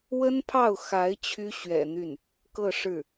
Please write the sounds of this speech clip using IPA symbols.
w ə˥ n pʰ ɑ˥˩ ʊ̯ x a˧˥ ɪ̯ t͡ɕʰ y˥ ɕ ɥ ɛ̰˨˩ n̪ y˥˩ n | k ɤ˥˧ ʂ ɻ̩˥˩

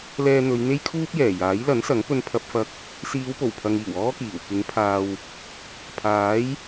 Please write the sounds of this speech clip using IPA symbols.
l ɛː˧ n̪ ɵ˨˧ ɥ n̪ e˥ j kʰ uː˥ p̚ j ɛː˨˩ j aː˨˥ j l ɐ˨˥ n s ɐ˨˥ ŋ p ɵ˧ n pʰ ɐ˧ p̚ f ɐ˧ k̚ | s iː˨˧ w p o˨˩ w pʰ ɐ˨ ŋ iː˨˩ w ɔː˥ k iː˨˩ w k ɪ˨˥ ŋ pʰ aː˨ w | pʰ aː˨˥ j

